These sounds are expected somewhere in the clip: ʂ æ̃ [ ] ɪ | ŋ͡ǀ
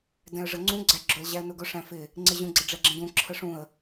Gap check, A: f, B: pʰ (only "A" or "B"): A